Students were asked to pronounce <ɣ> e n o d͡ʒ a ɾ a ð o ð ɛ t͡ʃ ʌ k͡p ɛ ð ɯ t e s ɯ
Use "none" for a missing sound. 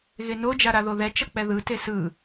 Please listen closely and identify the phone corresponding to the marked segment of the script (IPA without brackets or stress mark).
ɣ